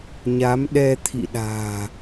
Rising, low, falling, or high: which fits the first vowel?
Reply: rising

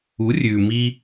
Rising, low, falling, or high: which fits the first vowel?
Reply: rising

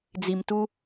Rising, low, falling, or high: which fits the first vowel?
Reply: low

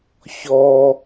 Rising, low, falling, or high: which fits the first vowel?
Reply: high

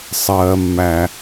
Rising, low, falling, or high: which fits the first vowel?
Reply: high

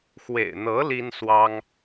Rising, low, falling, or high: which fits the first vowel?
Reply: low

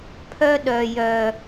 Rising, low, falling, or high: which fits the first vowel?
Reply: high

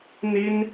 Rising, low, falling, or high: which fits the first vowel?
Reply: high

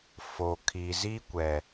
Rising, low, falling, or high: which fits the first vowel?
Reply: low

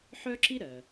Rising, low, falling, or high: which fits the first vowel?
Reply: high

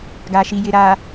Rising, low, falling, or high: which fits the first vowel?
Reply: low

